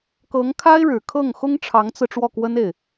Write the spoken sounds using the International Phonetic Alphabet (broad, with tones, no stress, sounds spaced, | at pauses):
k ɤ˧˥ ŋ kʰ a˥ ɪ̯ ɻ ɻ̩˨˩ kʰ ɤ˥˩ ŋ x ʊ˥ ŋ ʈ͡ʂʰ ɑ˧˥ ŋ t͡s ɹ̩˧ ʈ͡ʂ w ɔ˥˩ k w ə˥ n e˥˩ ɪ̯